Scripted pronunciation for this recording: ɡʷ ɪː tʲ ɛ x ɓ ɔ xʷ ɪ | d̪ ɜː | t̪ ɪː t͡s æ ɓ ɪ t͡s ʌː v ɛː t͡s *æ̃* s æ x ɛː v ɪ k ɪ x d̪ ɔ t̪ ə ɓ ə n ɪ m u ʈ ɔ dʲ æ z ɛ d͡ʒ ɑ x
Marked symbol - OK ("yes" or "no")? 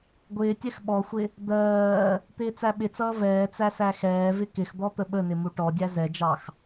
no